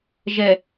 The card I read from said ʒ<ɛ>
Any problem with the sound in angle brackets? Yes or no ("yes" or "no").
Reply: no